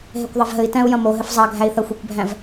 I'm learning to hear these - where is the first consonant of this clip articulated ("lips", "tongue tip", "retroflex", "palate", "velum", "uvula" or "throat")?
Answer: throat